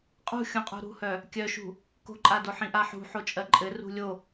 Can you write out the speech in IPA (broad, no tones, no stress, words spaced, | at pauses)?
qʼṳxʲũqʼṳ ɾṳhœ | kʲœʃṳ | ko̤ǃʼa doħĩʔaħṳ ħot͡ʃʼɜǃʼɘ rṳlʲo